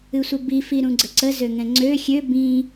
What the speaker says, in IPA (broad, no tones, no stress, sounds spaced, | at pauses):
ɨ sʷ ə b i f i ɾ ũ ɡ͡ǀ ə ǀ ə z ø ŋ ɛ̃ ŋ͡ǀ ø xʲ ø b ĩ